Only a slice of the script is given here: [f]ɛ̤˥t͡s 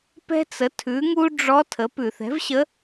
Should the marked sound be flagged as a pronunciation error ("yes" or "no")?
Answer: yes